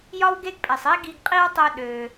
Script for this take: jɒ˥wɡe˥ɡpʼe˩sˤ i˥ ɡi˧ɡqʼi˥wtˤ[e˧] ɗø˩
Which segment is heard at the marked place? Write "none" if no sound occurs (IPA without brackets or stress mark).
ø˧